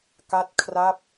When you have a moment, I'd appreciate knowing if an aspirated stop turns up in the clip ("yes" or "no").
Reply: yes